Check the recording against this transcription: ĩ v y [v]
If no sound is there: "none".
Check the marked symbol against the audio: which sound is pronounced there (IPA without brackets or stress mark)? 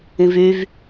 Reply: v